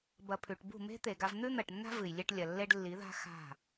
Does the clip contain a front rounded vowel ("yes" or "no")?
no